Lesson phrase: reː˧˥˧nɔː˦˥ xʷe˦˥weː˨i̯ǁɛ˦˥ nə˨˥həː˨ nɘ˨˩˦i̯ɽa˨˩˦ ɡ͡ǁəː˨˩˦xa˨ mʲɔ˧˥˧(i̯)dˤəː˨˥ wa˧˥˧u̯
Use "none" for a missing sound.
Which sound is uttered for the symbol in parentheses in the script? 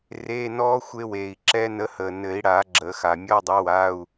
i̯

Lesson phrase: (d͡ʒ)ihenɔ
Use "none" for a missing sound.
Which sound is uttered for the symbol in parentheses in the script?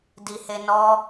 d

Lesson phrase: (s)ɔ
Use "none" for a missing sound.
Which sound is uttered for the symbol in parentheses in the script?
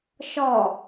ʃ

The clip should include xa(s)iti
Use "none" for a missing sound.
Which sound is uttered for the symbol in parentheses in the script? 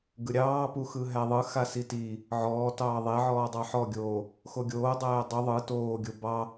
s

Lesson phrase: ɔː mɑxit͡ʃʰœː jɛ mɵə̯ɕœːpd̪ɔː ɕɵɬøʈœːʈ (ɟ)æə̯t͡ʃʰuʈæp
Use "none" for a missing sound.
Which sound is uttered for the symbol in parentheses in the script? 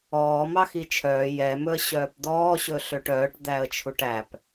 d̪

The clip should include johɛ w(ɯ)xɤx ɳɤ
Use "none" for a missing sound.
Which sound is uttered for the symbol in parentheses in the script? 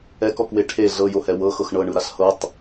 ɤ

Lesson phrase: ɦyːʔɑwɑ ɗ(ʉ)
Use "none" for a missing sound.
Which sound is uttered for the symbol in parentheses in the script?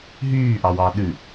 ʉ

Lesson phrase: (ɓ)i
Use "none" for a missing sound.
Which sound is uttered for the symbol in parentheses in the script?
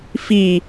f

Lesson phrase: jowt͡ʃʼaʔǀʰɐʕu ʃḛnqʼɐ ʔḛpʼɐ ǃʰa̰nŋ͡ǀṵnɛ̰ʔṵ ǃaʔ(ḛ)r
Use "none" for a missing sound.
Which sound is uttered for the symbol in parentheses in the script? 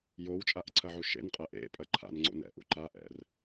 ɛ̰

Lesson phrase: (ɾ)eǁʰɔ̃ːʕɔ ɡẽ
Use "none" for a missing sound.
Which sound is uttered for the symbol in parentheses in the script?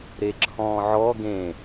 ɾ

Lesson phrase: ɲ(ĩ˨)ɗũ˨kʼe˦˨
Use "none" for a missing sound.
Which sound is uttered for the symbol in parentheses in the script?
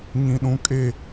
ĩ˨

